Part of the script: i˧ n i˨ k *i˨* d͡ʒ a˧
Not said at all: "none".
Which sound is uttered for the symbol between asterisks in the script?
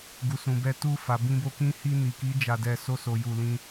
i˨˦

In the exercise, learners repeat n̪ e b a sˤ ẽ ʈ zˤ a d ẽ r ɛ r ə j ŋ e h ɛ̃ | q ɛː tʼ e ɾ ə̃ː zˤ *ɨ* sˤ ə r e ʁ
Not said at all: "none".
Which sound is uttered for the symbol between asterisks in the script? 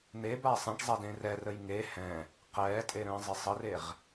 ɪ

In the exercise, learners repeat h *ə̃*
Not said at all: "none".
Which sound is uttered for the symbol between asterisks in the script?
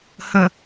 ə̃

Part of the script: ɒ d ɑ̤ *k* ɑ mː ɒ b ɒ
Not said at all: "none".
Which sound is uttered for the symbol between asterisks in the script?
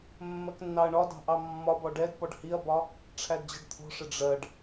ʔ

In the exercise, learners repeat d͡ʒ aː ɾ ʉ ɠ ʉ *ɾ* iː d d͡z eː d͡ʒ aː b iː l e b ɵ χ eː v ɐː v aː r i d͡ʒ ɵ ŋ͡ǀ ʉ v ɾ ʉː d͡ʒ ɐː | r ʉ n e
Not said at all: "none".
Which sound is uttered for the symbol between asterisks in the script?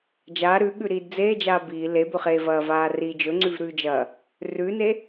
ɾ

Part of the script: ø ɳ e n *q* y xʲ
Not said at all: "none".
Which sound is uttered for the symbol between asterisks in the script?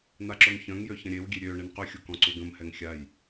q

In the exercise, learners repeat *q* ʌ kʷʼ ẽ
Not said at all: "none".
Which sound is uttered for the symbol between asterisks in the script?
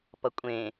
p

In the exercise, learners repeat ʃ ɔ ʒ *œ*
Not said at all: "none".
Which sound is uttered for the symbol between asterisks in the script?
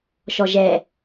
ɛ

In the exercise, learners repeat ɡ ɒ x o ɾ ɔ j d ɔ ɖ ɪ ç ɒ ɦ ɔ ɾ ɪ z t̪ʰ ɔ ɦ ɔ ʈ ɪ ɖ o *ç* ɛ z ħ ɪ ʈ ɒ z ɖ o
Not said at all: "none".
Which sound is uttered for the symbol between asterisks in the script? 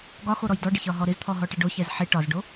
ç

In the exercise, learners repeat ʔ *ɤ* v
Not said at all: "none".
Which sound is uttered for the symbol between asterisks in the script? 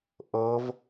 ɤ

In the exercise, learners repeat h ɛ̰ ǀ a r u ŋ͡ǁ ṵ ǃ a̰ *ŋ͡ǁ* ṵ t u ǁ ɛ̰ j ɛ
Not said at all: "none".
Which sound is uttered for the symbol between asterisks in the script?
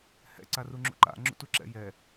ŋ͡ǁ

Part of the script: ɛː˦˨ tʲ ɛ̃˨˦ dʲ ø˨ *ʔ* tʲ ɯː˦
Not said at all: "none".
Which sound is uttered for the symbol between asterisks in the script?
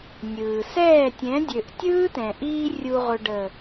ʔ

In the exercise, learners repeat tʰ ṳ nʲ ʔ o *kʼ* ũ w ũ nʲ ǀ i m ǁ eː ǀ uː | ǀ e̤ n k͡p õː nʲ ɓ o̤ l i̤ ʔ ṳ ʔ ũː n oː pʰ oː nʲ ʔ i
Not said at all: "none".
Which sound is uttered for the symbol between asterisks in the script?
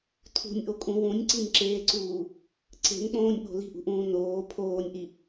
kʼ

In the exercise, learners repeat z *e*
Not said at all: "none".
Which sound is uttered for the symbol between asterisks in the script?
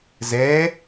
ɛ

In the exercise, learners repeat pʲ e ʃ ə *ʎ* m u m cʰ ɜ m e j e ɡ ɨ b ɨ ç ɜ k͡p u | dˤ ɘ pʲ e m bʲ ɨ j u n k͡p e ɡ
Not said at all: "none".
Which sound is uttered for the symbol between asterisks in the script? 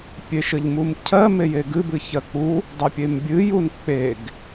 ʎ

